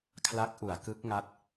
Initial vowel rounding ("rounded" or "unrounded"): unrounded